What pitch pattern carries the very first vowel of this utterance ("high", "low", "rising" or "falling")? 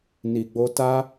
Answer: low